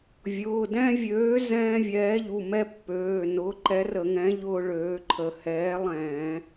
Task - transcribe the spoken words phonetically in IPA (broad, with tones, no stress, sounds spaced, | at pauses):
vʲ ʊː˩˧˩ d ɛ̃˦ vʲ øː˨˥ z ɛ̃ː˦ vʲ ɛː˨˥ ʎ u˩˧˩ m ɛ˦ pː øː˩˧˩ n ʊː˨˥ ǃ ɛ˨˥ r ə˧˩˧ ŋ ɛ̃˨˥ ʎ ʊː˦ ɭ øː˨˥ ǃʰ ə˧˩˧ h ɛː˨˥ lˠ ɛ̃ː˧˩˧